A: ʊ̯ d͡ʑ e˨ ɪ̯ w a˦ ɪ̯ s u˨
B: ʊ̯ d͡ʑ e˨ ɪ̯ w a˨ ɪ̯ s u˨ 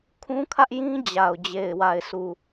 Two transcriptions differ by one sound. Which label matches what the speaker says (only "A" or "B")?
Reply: B